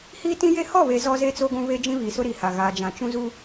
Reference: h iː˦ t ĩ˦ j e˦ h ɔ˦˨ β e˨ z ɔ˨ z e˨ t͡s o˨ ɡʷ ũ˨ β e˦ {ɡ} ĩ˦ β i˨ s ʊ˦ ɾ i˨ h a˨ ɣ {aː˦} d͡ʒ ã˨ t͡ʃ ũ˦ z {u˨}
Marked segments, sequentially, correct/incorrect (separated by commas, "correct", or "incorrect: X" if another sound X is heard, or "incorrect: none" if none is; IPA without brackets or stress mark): incorrect: d͡ʒ, incorrect: aː˨, incorrect: u˦